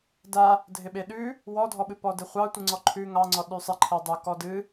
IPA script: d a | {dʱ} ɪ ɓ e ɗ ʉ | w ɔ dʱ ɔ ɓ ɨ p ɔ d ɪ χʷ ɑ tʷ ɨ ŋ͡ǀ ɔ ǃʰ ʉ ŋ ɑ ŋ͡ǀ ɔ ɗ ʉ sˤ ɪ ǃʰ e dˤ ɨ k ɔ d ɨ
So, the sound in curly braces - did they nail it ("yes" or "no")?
yes